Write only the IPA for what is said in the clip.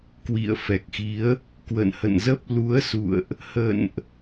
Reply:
k w ḭ˧˨ ə̯ f ɛ˨˩ k̚ x i˨˦ ə̯ | k w ə̰˧˨ n h ə̰˧˨ n z ə˦˥ p̚ l u˨˦ ə̯ s ṵ˧˨ ə̯ ʔ | h ə̰˧˨ n ʔ

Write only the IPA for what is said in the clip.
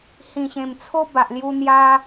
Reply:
h ĩ˨˩ ɕ ẽ˨˩ m t͡sʰ o˦ b a˨ ʔ l j u˧ n̪ j a˧

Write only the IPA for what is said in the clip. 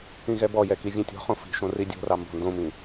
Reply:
ĩ ɣ ɛ b ɔ j ɛ k i vʲ ɛ̃ tʲ ɔ̤ χ õ f i̤ ʃ õ r i dʲ o̤ r ɑ m b ɔ̤ n d õ m ĩ

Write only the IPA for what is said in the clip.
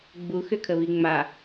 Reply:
ɡ͡b u x ʏ kʰ ə β i ŋ͡m a

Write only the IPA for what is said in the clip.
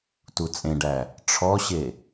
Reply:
t u t͡sʼ ẽ ɖ æ | ʈ͡ʂʰ ɔ ɕ e

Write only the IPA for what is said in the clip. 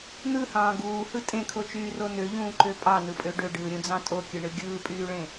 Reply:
n̪ ɯ h ɑ̃ː ɡ uː h ɯ tʼ ẽ kʰ o t͡ʃ yː r o n ø ʎ ũː ǃ ø pʼ ɑ n ɯ pʼ ø ɖ ø ɖ ɯː ɾʲ ũ d͡z ɑ̃ tʼ o kʲ ɯ ɳ ɯ ɡʲ ɯː pʼ yː ɭ ẽ

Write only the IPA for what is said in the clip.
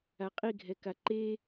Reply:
a qʼ i ɡʱ ɛ k a ǃ e

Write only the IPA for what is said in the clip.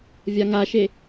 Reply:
vʲ a ŋ a ʃ e

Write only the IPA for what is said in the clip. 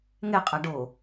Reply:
ŋ ɛ qʼ a ɖ o

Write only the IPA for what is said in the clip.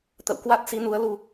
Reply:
t̪ ə̰˧˨ w k w a˦˥ t̚ s i˨˦ n u˨˦ ə̯ l u˧

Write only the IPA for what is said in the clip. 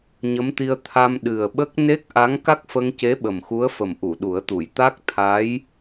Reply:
ɲ ə˧˥ m t̪ i˧ ə̯ t̪ʰ a˧ m ɗ ɨ˨˩ ə̯ ɓ ə˦˥ k̚ n e˦˥ k̚ ʔ a˧˥ ŋ k a˦˥ k̚ f ə˧ ŋ c e˧˥ ɓ ə˨˩ m x u˧˥ ə̯ f ə˨˩ m ʔ u˨˩˨ ɗ u˨˩˦ ə̯ t̪ u˨˩˨ j t̪ a˦˥ k̚ t̪ʰ a˧˥ j

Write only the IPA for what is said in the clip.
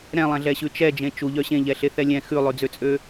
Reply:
ɾ ɛ̃ lˠ ɛ̃ ɮ ɛ ɕ ʉ t͡ʃ ɛ d͡ʒ ẽ t͡ʃ u ʎ œ ɕ ẽ ʎ ɛ ɬ e θ ɛ lʲ ɛ̃ x ʉ lˠ ʉ d͡z ø t͡sʼ ø

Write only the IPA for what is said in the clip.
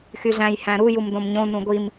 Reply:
x y ɮ æ̃ j h æ̃ ɾ u j u m d õ m ɲ õ n ũ ɡʷ i m

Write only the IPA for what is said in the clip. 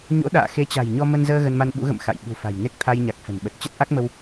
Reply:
ɲ o̰˧˥ ɗ a̰ː˧˨ x e˨˦ t͡ɕ a̤˨˩ j ɲ ɔ˧ m ə˧ n z əː˧ ɣ ə˧ n m a˧ n ɓ ṵ˧˥ ɣ ə̰˧˨ m x a̰˧˨ j ɓ ṳ˨˩ f a̤˨˩ j n e˦˥ k̚ t̪ʰ a˧ j ɲ a˨˩ k̚ f ə̤˨˩ n ɓ ə˨˩ t̚ t͡ɕ ə˦˥ t̚ ʔ a˦˥ k̚ m ə˧ w

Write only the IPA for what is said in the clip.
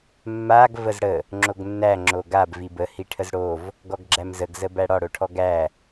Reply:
mː a ɡ v ə z ɽ ə | ŋ͡ǁ o ɡ nː æ ŋ͡ǁ o ɡ a b v i b ə h i ʈʰ ə z ɽ o v | ɡ ɔ ɡ ɡ͡ǁ æ m z ə ɡ z ə b æ ɽ ɒ ɽ o ʈʰ ɔ ɡ æ

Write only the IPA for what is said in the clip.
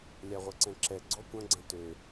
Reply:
lʲ a ʁʷ ɐ ǀ ɛ̃ ǁ ɛ ɡ͡ǀ ɔ kʷ ɐ̃ ɡ͡ǀ ɐ̃ t ø

